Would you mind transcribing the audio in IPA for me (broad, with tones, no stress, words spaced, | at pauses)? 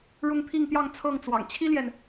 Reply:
ɻʊ˥˧ŋt̪ʰi˥˧ŋt̪jɑ˥˧ŋ t͡sʰɤ˥˩ŋt͡swɑ̰˨˩ŋ t͡ɕʰi˥ljɛ˨n